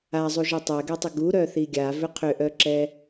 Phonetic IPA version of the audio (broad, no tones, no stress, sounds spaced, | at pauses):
a zˤ u ʒ i tˤ ɛ ɡ ɛ tˤ ʏ ɡ u ɾ œ θ i ɡʲ a v ʏ qʰ ʏ ʔ œ ǁ ɛ